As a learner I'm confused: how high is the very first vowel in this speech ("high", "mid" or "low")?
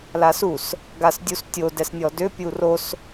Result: low